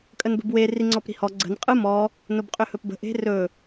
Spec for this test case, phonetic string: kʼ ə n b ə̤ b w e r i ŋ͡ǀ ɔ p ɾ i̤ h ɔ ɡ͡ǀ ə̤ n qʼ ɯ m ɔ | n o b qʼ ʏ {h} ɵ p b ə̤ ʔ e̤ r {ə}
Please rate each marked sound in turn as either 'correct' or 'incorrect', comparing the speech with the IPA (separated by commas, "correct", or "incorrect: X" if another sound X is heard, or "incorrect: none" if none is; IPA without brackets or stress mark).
correct, incorrect: ɵ